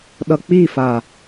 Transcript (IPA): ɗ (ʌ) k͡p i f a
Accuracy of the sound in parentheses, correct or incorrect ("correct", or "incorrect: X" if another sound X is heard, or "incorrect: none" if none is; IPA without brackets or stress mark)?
correct